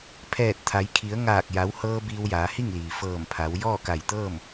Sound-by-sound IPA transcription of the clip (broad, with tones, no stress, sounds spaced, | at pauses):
pʰ ɛː˧˩ t̚ t̪ʰ a˩˧ j kʰ i˩˧ ə̯ ŋ aː˧˩ k̚ j a˩˧ w h ɤː˧ b iː˧ w j aː˩˧ h i˥˨ ŋ l iː˩ f ɤː˧˩ m pʰ a˩˧ w j ɔː˥˨ k a˧˩ j t̪ ɤː˥˨ m